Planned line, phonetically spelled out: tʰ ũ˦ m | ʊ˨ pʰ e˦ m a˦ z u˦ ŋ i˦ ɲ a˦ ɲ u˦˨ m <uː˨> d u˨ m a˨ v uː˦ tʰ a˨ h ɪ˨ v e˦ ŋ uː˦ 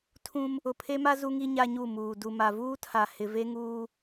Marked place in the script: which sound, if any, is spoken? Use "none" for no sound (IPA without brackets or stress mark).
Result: uː˨